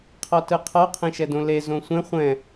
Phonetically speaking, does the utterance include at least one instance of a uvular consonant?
yes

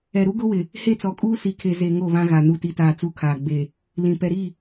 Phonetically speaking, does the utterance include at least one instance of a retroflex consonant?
no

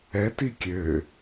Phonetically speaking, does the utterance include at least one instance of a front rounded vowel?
yes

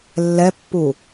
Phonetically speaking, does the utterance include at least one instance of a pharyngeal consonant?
no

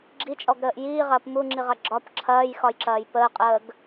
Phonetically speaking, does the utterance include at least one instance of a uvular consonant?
yes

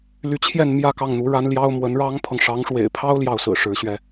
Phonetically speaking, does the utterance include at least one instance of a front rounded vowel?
yes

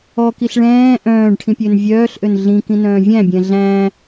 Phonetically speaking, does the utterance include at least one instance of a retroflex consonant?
yes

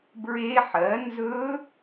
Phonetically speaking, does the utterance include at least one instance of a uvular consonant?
no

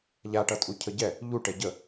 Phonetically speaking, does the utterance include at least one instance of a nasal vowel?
no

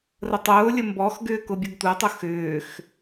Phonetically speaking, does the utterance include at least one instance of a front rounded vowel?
yes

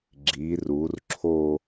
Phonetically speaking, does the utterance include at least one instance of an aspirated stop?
yes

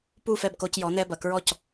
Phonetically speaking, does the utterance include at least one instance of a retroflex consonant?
no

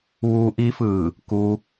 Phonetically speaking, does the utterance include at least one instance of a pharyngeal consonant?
no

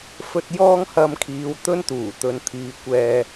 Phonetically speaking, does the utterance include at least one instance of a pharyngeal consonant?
no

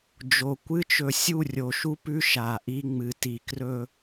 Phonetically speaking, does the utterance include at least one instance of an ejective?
no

